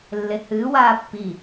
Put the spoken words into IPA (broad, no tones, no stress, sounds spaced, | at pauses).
lː e h ɨː w aː pː i